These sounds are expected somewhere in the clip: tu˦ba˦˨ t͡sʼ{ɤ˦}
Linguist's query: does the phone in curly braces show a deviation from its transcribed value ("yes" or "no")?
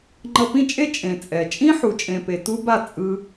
yes